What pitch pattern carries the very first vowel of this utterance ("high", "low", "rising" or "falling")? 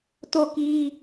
falling